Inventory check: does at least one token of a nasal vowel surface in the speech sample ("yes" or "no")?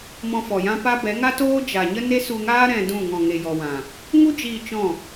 yes